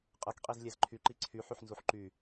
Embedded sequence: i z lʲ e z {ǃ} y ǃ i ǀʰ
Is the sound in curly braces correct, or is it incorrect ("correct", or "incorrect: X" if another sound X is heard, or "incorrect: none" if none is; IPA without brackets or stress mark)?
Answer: incorrect: ǃʰ